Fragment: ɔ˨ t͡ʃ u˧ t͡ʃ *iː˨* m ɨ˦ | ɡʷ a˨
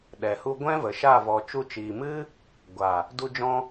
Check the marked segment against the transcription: correct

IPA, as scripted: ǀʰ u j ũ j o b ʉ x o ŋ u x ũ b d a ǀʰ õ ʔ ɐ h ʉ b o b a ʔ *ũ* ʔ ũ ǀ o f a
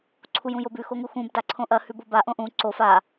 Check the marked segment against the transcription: incorrect: õ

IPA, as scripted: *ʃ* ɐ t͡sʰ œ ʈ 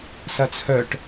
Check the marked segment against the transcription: incorrect: s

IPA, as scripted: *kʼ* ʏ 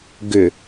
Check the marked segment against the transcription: incorrect: ɡ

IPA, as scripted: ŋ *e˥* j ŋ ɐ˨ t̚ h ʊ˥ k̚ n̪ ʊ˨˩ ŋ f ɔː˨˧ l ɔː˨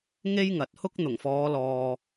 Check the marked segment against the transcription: correct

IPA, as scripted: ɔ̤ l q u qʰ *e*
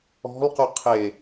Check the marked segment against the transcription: correct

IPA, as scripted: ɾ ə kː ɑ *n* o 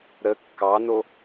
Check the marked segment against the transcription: correct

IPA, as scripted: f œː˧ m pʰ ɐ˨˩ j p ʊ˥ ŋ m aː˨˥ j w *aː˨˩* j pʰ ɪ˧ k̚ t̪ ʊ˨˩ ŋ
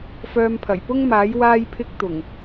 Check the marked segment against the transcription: incorrect: aː˧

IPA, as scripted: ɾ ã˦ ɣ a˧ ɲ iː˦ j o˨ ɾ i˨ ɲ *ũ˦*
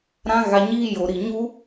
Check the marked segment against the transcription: incorrect: u˦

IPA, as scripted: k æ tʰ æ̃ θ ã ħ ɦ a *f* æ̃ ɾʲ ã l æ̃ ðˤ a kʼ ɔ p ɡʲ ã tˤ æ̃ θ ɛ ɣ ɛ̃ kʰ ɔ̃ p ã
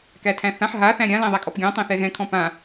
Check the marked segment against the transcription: incorrect: θ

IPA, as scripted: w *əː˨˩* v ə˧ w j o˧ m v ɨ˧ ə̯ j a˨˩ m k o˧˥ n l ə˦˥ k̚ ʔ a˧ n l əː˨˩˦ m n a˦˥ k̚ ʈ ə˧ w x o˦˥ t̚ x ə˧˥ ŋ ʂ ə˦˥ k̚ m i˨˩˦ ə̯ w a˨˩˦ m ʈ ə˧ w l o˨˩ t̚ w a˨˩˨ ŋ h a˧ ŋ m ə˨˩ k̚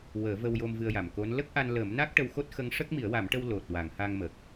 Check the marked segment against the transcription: incorrect: əː˨˩˦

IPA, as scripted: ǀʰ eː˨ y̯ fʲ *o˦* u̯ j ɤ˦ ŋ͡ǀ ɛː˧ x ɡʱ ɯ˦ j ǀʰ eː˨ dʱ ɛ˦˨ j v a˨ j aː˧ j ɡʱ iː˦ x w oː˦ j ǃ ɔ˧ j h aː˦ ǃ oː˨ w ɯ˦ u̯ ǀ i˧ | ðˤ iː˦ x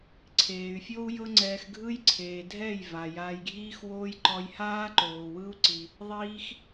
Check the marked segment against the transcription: correct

